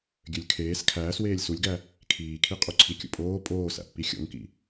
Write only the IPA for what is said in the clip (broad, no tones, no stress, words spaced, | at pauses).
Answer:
ɡʲølʲkʰeːs kʰæːsweːlʲ sulʲɡæ | kʰiːkʰiqʼuǀʰi kʲṵpʼoː pʼoːsæ̰pːi xʲo̰ŋkḭ